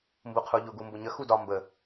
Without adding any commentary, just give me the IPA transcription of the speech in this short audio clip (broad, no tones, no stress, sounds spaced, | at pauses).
m b u qʰ u ʎ ʊ ɡ u m b ʊ ɲ ə x u d ɒ m b ə